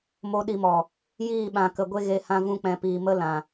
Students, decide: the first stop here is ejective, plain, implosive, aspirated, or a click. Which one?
implosive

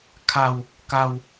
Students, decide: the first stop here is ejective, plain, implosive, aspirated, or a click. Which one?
aspirated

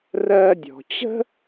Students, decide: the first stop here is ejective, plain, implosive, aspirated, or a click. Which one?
plain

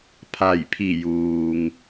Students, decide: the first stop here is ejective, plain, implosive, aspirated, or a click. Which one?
aspirated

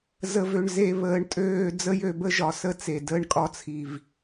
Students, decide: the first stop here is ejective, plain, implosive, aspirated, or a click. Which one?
ejective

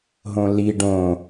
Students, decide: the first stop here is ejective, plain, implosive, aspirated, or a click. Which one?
plain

